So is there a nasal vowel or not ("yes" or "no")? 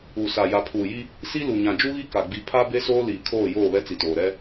yes